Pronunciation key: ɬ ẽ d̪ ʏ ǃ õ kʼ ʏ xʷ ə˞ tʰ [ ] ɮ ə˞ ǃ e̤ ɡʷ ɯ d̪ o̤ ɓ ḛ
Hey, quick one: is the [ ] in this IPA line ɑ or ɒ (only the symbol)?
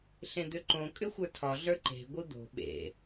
ɒ